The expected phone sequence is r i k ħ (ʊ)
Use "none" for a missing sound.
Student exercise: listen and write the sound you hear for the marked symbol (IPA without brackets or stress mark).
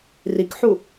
u